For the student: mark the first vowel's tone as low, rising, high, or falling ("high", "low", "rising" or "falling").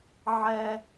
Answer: high